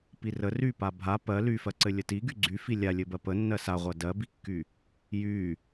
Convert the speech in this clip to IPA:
p i r ə r y p a bʱ a p ɜ l y f ɜ ǀ ɘ lʲ ə t i ɡ y ɡ͡ǀ y f i lʲ a lʲ ɘ b ɜ p ə nː ɜ s a ʁʷ ɜ d ɜ b i kː y | j y

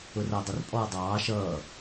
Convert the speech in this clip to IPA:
ʊ r ʌː dˤ ʊ r pʼ ɔː dˤ ɑː ʃ ʌː

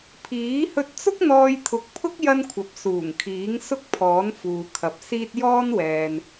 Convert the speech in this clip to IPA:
pʰ iː˨˥ h ɵ˧ t̚ t͡s ʊ˥ k̚ n̪ ɔː˧ j t̪ʰ ʊ˨˥ k̚ pʰ ʊ˥ k̚ j ɐ˥ n kʷʰ ɐ˨˥ p̚ s uː˨˩ ŋ kʰ iː˨˥ ŋ s ʊ˥ k̚ pʰ ɔː˨˥ n f uː˨ kʰ ɐ˨˥ p̚ s iː˥ t̚ j ɔː˥ n w ɛː˨ n

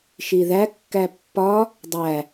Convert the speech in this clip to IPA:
ʃ i ð æ kː æ pː ɒ | dˤ æ

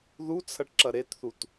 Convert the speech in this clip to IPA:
ð u t͡sʰ ɐ ʈ ǁ ɐ ɾ e t θ u t

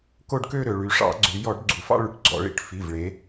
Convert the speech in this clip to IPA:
k o˥˧ ɖ k ø˥˧ ɾ ø˩˧ ɭ y˩˧ ʂ ɑ̰˧˩˧ ɡ͡ǀ ʉ˩˧ j ɔ˧˩˧ ɖ ɡ͡ǀ u˩˧ f ɑ̰˥˧ ɭ y˩˧ ʈ ɡ͡ǀ ɔ̰˧˩˧ ɭ ḭ˩˧ ʈ f i˩˧˩ v ɭ e˩˧

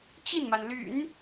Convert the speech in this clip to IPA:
t͡ɕ i˥˩ n m a˩ n l y̰˨˩˦ n

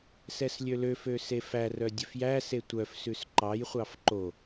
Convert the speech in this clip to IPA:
s ɛ s lʲ ø l ø f ø s e f æ r œ dʲ ø f j æ s e tʷ œ f s ʉ s ǃ ɑ j χʷ ɑ f ǃ o

